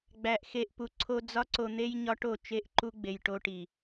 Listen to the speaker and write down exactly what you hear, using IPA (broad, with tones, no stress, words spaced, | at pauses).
ɡ͡bæ˨ʔxe˧ʔpu˨ǀʰo˦ d͡zɒ˦ǀo˧n̪e˦j ɲɒ˦ʈo˦˨ t͡ʃe˦˨ʔǃu˦ɡ͡be˨j ʈo˧ʈi˨